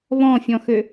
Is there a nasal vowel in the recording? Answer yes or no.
yes